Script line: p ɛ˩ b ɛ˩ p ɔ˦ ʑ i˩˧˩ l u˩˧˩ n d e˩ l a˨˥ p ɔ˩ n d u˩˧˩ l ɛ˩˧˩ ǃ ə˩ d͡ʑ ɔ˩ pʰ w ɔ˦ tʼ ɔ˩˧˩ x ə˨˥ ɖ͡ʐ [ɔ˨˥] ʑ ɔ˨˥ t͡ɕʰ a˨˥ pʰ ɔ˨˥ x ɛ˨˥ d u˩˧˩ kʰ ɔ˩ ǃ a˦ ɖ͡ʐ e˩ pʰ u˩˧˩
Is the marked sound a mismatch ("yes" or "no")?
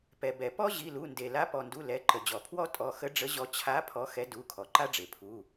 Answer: yes